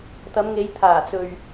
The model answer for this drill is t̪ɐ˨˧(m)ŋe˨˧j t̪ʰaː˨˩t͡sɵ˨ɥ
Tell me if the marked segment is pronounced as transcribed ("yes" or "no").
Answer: yes